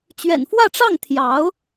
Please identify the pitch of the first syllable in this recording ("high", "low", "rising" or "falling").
low